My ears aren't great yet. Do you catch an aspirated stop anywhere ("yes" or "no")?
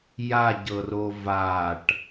no